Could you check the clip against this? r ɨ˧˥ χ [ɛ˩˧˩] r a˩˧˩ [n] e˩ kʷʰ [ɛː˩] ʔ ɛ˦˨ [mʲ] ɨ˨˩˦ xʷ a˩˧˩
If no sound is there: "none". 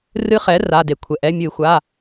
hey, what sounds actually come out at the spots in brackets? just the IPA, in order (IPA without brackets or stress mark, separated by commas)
ɛ˩˥, d, ɛ˩, mʲ